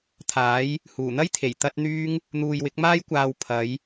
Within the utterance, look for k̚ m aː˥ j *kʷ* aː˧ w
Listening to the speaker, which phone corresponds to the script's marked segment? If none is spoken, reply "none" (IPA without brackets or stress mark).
kʷ